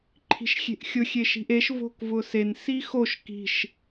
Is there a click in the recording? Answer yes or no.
yes